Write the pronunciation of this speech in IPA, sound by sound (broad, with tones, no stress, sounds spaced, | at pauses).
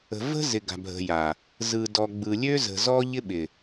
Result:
ə̤˨ v ə̤˦ z ɪ˨ ɡ a̤˨ bʱ ə̤˨ j a˨ | z ɯ˨ d ɔ˨ ɡ͡b ɯ˨ lʲ ø˦ z ə̤˨ z ɔ˦ ʎ ɪ˦ ɓ ɪ˨